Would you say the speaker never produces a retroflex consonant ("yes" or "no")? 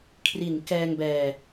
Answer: yes